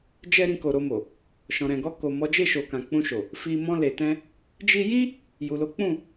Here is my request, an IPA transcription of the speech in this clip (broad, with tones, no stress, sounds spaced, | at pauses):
d͡ʒ ɛ˧ ɾ ĩ˧ k o˨ ɾ o˧ m o˨ | ʃ ɔ̃˨ ɾ ɛ̃˨ ɡ ɔ˧ k o˨ m ɔ˨˦ d͡ʒ e˦˨ ʃ o˨ k ã˨ k͡p ũ˧ ʃ o˨ | f i˧ m ɔ̃˧ l e˨ t ɛ̃˧ | d͡ʒ i˧ j i˦ | j u˨ l o˨˦ k͡p ũ˦˨